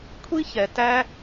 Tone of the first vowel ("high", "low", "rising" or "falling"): high